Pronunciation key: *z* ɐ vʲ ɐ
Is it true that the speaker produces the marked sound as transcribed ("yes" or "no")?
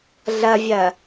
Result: no